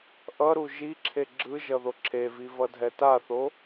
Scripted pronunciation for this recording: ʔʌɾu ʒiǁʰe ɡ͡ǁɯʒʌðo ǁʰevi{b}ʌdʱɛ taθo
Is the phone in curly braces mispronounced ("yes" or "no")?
yes